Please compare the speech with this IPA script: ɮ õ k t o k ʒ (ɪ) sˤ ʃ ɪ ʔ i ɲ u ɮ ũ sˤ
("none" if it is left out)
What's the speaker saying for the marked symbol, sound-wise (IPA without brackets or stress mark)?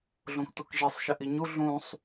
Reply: i